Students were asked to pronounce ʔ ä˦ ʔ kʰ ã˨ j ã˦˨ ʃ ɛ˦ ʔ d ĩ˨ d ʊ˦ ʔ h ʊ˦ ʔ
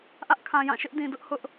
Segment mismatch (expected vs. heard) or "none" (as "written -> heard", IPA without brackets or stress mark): ɛ˦ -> ɪ˦